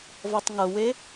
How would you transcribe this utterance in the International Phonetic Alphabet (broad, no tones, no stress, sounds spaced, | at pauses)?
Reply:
v ɔ tˤ ŋ ɤ w e